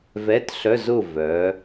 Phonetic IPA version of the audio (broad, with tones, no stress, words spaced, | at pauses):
vɛ˧˥˧tɬœ˧˥˧zʊ˥˨ vœ˩˥